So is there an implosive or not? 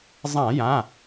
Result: no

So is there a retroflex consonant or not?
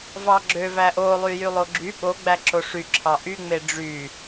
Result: yes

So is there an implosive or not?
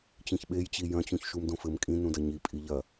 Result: yes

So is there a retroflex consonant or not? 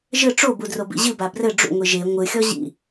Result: yes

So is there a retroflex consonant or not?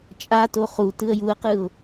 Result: no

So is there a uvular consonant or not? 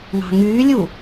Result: no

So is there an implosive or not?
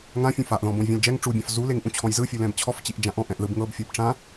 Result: no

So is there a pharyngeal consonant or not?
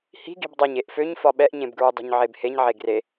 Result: yes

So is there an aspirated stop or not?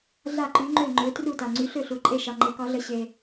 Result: no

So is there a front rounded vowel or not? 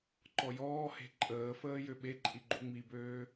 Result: yes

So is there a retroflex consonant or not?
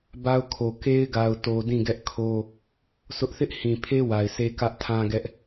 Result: no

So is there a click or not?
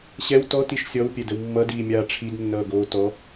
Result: no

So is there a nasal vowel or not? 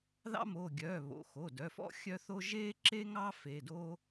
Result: no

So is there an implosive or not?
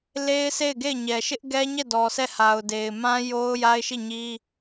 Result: no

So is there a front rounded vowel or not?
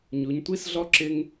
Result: no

